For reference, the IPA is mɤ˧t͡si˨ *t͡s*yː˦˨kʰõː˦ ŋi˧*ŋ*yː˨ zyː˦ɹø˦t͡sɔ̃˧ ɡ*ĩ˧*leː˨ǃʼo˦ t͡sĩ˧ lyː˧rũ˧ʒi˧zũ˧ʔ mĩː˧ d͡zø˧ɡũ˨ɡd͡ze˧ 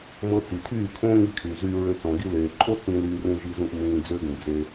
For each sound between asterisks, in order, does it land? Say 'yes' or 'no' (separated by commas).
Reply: no, no, no